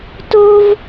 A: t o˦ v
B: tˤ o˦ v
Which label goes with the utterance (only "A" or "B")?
A